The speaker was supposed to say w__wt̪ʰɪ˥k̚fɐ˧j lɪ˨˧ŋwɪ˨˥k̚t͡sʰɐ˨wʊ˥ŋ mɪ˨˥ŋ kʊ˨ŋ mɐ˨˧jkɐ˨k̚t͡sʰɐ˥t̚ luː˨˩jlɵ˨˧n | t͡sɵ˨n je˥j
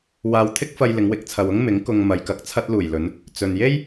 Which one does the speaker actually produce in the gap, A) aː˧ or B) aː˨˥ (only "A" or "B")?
A